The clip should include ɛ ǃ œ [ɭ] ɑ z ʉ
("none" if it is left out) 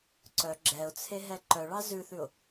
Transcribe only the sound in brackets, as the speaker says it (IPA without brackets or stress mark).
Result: ɭ